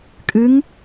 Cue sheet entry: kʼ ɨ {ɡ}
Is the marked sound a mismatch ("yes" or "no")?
yes